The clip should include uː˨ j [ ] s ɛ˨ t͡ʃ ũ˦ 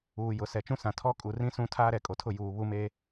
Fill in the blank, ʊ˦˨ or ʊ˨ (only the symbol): ʊ˨